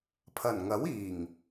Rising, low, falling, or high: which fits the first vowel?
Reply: low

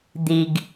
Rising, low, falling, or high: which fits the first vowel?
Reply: low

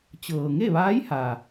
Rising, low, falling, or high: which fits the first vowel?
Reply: low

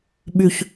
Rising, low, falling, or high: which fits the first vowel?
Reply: low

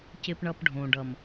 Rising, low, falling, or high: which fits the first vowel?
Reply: high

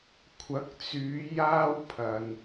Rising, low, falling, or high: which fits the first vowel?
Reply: rising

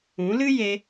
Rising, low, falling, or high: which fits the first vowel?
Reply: rising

